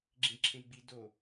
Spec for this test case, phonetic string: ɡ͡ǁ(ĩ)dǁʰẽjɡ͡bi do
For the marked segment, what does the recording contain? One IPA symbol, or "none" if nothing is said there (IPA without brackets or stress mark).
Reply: ĩ